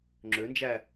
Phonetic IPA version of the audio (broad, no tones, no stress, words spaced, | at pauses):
ŋ͡ǁønd͡ʒæ